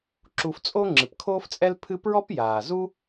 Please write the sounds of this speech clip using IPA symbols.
ǁu˧ft͡sʼo˥ ŋ͡ǁɨ˩pkʰoː˥ft͡sʼɛ˥l pʰɨ˥ pɹɔ˥pjaː˩zu˥

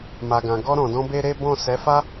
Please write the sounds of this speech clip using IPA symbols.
ma˨ɡã˨ ɡɔ˧ɾɔ̃˨dɔ̃˧ be˦ɾe˦ bɔ̃˦˨ sɛ˨˦fa˦

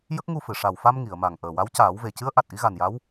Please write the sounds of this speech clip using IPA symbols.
jə˦˥k̚ŋu˧fɨ˨˩˨ ʂa˨˩wfa˧m ŋi˨˩˨ə̯ma˨˩ŋ ʔəː˨˩wa˧˥w caː˨˩˦w ve˨˩cɨ˧˥ə̯ ʔa˨˩t̚ʔi˧˥ɣa˨˩nja˧˥w

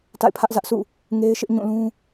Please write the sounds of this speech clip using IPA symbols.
ta̰˦˨ɪ̯pʰä˦ʔzä˦ʔsʰṵ˦˨ | ŋe˦ɪ̯ʃɪ˦ʔ ɲũ˦˨lũ˦

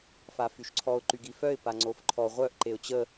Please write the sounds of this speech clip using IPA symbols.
fafyʃǀʰɔʊ̯ ǃyɡifœɪ̯ paŋ͡ǀofǃʰɔ ʁʷœʔ ǃeʊ̯t͡ɕə

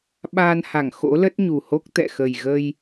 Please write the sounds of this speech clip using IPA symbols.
ɓaː˧nha˧˩ŋ xo̰˧˥lə˦˥t̚ɲu˨˩ho˦˥k̚ t̪ɛ̰˧˨xə˨˩j ɣə˧j

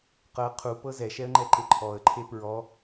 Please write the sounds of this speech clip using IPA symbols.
qɤ qʰupɤ zɛʃɛə̯ŋ͡ǃɛǃe ǃʰɔə̯ǃʰe pɹɔ

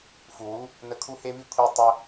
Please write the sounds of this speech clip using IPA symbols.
fu˨wu˦ | nə˧kʰu˦he˦βi˦ kʷʰi˧ tˤə˧

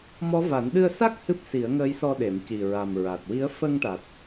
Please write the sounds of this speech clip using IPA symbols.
mɔ˧˥va˨˩˦n ɗɨ˧ə̯sa˦˥k̚ hɨ˦˥p̚si˨˩˦ə̯ŋəː˧˥jsɔ˧ ɗe˨˩˨m ci˨˩ɹa˨˩m ɹa˨˩t̚wi˧˥ə̯ fə˧ŋʈa˨˩t̚

